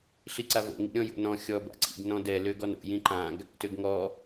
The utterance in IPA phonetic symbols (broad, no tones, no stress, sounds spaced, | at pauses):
ɬ i ǀ a v o̰ ŋ ḭ ɾʲ ɔ̃ j o̰ n ɔ̃ xʲ ɔ b a̰ ǀ ḭ ɡ n ɔ̃ d ɛ l ø ɡ ɔ n o̰ j ĩ ǃ ã ɡ | t ø ɡ ŋ ɔ